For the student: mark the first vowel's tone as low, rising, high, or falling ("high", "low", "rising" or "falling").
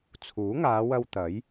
rising